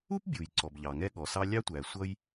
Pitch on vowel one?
high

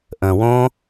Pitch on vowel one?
low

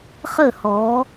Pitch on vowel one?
falling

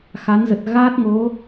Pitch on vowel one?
rising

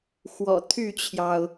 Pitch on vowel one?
low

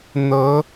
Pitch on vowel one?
rising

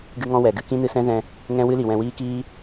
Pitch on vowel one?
high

